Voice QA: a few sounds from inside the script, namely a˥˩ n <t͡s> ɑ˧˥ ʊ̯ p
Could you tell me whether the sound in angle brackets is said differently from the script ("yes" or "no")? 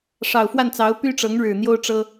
no